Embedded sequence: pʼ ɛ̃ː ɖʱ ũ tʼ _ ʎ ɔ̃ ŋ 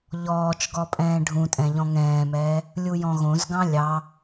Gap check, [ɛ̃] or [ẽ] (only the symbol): ɛ̃